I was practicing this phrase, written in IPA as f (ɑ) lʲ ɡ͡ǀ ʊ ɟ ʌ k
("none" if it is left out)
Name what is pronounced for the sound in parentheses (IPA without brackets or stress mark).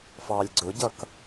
ɑ